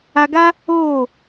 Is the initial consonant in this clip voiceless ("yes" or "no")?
no